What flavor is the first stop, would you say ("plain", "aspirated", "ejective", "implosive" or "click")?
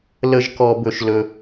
plain